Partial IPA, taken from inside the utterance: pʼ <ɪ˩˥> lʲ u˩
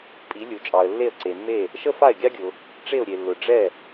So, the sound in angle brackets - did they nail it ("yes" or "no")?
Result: no